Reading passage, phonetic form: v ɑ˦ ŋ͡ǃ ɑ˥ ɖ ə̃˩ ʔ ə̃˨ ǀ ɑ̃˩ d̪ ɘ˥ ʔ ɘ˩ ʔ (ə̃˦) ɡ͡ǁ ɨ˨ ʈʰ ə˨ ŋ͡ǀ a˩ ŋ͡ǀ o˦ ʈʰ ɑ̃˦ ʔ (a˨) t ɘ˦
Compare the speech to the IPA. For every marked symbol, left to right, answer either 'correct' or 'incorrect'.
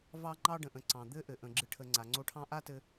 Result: incorrect: ə̃˩, incorrect: a˥

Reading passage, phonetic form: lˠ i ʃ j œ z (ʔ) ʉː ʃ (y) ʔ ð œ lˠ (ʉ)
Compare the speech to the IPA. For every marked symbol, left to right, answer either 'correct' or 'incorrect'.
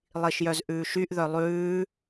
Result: correct, correct, incorrect: ʉː

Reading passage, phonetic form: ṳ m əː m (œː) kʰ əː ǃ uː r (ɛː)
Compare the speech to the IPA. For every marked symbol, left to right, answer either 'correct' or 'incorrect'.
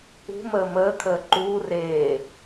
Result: incorrect: əː, incorrect: eː

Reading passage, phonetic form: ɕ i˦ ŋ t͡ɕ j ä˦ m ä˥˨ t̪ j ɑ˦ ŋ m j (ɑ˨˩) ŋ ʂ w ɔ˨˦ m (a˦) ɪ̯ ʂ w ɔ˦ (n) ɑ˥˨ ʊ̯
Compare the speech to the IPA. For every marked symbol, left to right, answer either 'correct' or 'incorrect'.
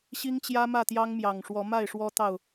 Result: correct, incorrect: a˥˨, incorrect: t̪

